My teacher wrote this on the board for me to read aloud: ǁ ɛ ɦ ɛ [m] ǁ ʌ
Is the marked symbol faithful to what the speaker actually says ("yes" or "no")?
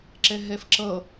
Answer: no